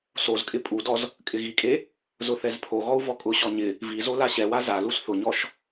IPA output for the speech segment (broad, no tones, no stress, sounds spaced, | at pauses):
s o z kʼ ɪ pʼ u d ɔ z | kʼ ɪ ɣ i kʼ e | z ʊ θ ɛ z pʰ o ɣ ɔ u̯ v ɔ kʼ ʊ ɕ ɔ ɲ ɪ | v i z o l a ɕ ɛ w a z a l u s θ ʊ ɲ ɔ ʃ